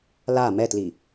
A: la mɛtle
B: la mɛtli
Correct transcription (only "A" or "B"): B